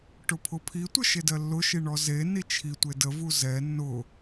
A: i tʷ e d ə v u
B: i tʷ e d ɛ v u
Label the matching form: A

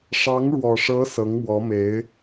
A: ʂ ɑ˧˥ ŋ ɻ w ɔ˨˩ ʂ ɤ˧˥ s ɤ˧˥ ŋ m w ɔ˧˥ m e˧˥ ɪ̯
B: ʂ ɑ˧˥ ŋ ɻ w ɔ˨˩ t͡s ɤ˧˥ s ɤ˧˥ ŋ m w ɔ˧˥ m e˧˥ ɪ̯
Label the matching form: A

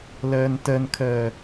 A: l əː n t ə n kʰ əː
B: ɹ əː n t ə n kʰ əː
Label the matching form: A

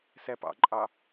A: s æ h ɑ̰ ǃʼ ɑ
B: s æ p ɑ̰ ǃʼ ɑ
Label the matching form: B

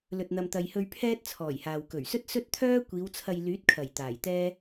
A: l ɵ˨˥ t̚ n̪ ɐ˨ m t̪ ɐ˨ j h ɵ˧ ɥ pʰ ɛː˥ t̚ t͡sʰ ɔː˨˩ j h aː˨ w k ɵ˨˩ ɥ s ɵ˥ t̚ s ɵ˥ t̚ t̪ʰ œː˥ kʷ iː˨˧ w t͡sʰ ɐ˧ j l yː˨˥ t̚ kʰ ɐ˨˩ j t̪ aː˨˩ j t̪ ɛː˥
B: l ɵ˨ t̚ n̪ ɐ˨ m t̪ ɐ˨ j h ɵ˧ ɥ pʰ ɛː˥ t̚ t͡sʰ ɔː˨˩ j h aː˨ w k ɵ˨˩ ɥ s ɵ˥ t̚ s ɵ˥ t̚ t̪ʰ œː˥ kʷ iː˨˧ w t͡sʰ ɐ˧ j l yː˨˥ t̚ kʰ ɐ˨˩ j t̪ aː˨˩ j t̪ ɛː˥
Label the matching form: B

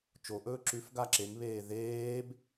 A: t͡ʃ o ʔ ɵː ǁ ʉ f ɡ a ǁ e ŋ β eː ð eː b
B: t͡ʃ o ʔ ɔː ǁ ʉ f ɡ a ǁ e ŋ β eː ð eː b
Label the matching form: A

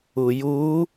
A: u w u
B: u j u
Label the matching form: B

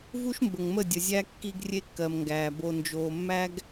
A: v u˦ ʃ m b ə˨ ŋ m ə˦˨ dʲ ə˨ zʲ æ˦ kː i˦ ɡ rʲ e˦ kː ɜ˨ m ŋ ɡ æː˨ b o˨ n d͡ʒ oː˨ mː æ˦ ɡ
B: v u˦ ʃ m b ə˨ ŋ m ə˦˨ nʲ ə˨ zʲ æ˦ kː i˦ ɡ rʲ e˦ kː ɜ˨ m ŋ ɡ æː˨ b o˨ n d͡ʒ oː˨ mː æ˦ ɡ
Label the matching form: A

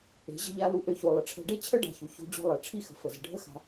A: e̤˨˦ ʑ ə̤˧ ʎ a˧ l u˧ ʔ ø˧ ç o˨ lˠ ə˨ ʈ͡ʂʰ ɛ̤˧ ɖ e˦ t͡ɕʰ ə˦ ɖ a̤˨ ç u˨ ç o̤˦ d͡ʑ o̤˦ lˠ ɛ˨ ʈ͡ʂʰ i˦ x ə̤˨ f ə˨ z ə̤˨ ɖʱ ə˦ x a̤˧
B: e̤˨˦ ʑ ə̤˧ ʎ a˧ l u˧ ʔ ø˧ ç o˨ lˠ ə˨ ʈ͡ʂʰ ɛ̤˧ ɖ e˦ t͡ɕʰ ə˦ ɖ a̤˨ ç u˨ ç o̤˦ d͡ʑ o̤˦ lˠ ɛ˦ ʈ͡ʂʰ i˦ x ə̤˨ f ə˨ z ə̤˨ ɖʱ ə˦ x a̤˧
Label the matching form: A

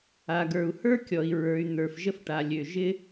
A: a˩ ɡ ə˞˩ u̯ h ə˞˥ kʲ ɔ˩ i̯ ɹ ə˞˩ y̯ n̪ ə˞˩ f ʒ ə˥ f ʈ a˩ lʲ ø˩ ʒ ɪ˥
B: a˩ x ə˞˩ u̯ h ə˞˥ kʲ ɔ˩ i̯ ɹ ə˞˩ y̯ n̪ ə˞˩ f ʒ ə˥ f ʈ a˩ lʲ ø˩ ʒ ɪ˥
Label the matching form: A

